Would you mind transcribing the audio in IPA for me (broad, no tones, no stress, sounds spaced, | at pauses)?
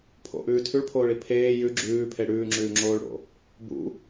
pʰ o̰ ʔ ʉː tʰ ʉ ɭ pʰ oː ɭ i pʰ eː j ʉ ɡ͡ǁ ʉː pʰ e ɽ ʉː ŋ͡ǁ ʉː ŋ͡ǁ oː ɭ ɽ o̰ | b ṵ